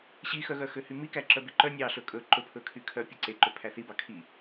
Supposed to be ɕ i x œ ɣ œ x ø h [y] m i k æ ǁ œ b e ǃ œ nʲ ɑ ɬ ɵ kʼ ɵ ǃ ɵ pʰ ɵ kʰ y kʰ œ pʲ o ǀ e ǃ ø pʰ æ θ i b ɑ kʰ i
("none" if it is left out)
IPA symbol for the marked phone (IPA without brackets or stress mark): y